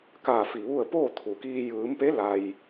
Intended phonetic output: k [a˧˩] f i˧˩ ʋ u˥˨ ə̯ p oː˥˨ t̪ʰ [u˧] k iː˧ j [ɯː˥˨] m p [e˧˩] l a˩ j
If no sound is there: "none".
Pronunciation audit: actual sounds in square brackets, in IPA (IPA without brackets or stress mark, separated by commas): a˧˩, u˩, ɯː˩˧, e˧˥